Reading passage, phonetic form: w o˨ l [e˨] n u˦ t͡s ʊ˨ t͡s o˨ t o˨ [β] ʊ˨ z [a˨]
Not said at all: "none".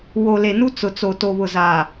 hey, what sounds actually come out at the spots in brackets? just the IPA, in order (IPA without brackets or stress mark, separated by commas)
e˨, β, aː˨